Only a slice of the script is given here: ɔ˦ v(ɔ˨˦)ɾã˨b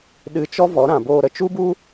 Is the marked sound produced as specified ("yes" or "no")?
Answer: yes